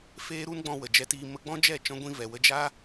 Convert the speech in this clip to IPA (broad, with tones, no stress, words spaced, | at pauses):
feː˦ ɾu˦nɡ͡bɔ̃˧wə˨ d͡ʒɛ˧tiː˧ mə˧ɡ͡bɔ̃˦d͡ʒɛ˦˨ t͡ʃɔ̃˧ɡʷĩ˧vɛ˨wə˧ d͡ʒa˦